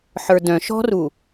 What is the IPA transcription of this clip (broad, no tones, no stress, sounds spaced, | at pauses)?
ħ ə˞ d œ̃ ʃ ɔ̤ r u